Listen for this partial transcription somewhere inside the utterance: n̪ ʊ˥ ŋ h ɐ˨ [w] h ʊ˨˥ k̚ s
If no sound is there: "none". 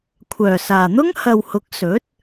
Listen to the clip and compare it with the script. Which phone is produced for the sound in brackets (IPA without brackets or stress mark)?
w